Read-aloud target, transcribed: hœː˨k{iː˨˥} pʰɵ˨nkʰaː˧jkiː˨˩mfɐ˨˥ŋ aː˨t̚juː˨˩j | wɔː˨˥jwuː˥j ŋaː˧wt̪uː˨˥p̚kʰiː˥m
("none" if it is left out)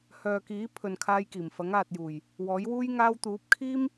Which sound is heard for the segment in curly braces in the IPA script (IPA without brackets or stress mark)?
iː˨˥